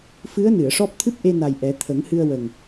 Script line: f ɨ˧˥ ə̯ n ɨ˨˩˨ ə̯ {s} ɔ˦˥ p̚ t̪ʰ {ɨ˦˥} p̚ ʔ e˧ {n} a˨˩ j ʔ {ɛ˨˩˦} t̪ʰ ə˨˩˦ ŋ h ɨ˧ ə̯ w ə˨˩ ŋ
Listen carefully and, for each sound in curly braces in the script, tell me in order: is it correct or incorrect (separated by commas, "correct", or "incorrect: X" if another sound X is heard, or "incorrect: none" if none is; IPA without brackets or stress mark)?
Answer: incorrect: ʂ, correct, correct, correct